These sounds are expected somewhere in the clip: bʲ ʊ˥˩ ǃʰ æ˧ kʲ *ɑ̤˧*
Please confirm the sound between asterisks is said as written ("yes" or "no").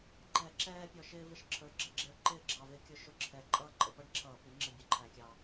no